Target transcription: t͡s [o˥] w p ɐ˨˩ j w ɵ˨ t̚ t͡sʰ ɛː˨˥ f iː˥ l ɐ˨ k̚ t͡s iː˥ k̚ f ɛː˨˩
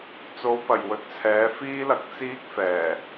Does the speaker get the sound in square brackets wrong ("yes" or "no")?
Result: yes